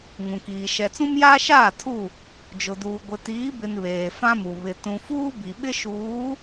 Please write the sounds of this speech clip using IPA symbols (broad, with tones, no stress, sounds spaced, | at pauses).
ŋ ũ˨ k iː˨ ʃ ɛ˨ t͡s ũ˦ m j aː˦ ʃ aː˦˨ tʰ u˦˨ | d͡ʒ ʊ˨ d uː˨ ɡʷ ɪ˨ t iː˨˦ b ɪ˨ n β eː˨ f ã˦ m u˨ β ɪ˨ t ũ˨ f uː˦ b i˨ ɓ ɪ˦ ʃ uː˨˦